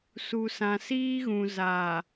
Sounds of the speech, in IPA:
su˨sã˨siː˦ɣũ˨ za˨

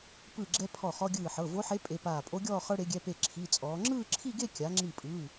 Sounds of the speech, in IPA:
pɯ˧˩ɡ͡ǁɛ˧ pʰɔ˧˩χɔ˧ɡʲɯː˧˩ħɤ˩˧˩ vo˧˥ħe˧˥ pʼe˩˧˩paː˧˩pʼo˧˥ɡʲɔː˥˧ χɤ˧ɽe˩˧ɡʲɛ˩˧˩ pe˧˩ ǁʰi˩˧˩t͡sʼɔː˩˧ ŋ͡ǁɯː˥˧ǁʰi˥˧ɡe˥˧ kʲa˩˧ŋ͡ǁi˧˩pʼɯː˩˧˩

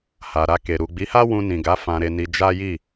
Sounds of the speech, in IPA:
ha˨ ɾa˧ke˨ ɾu˨ɡ͡bi˨˦ha˦ wũ˧nĩ˨ɡa˨˦ fã˧ɾe˧ni˧ d͡ʒa˦ji˦˨

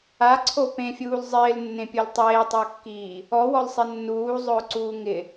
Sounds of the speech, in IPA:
aǀʰo pẽfʲuːl zˤɪːlnːẽpʲol tˤeːtˤʊːkːiː | ɔwɔlsˤe nːuːzˤʊːǀuː ŋɪ

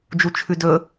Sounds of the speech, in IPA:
d͡ʒut͡ʃʰʉdɵ

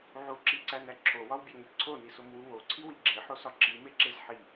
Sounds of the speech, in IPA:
ʕuǁiǀænæ ǁʰowɒwbʲæŋe ǀʰonisomwu woǀʰiwi ɡ͡ǁeħosɒ ǁimeǁez ħi

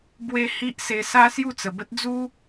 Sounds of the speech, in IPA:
bwe˦ hi˦ʔ se˧sa˦ sju˥˧t͡sə˨˩bə˦t̚ d͡zu˦

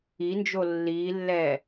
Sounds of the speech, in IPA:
ind͡ʒo lːiːlːɛː

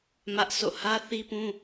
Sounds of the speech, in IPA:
mä˦ʔso̰˦˨ hä˦θi˦pũ˦

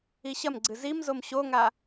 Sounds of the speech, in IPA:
iɕɐmɡ͡ǀɨ zimzom ɕoŋa

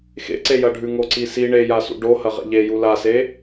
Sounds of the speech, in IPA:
xḛǀejɐ ɖʱʉŋoǀisi ɳejasṵ ɖo hɐʁḛʎeju lase

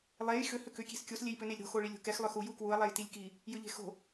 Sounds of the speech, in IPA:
lˠej xʏ hʏkʏ kʲe̤skʲos lʲejpʏnelʲɾo̤ xoɭilʲo̤kɛx lˠʏxu jukwuɐ̯ lˠɛjtilʲki | jʏʎe̤xo̤

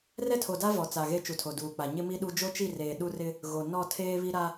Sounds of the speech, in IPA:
rɛ˦tʰo˨da˦ vɔ˨t͡sa˨ɣe˦ t͡ʃu˨tʰo˨ duː˨k͡pa˨ ɲɪ˦ mi˦ɗu˦ d͡ʒo˦t͡ʃi˦˨reː˨ ɗu˦rɪ˦ | ɣo˨ nɔ˦˨tʰeː˦βi˦ ɾa˦

